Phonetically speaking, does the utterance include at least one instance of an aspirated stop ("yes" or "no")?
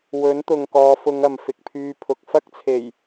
yes